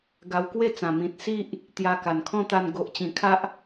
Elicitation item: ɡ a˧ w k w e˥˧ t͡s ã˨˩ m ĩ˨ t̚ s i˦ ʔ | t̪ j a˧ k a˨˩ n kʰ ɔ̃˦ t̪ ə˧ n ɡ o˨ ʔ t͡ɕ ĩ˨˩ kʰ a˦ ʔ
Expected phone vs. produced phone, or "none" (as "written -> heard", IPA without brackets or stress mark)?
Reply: ə˧ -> a˧